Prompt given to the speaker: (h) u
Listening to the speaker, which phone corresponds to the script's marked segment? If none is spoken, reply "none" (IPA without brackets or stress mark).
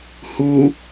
h